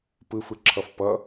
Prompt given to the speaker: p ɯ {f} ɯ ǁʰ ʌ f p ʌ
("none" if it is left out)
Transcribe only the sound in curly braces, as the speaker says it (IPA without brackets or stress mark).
f